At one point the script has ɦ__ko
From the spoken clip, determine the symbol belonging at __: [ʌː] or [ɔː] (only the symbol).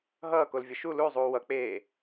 ʌː